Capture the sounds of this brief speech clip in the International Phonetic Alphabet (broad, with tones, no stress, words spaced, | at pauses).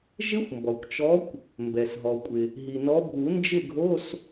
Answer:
ʒɪ˦˥xʷmbɔ˩kʷt͡ʃɔ˨˦kʷ | mbɛ˩sɦɔ˩kʷʼɪ˩ | ɦi˩nɔ˨˦bʱu˨˩˦ nd͡ʒɪ˥˨ɡʱo˧˥˧s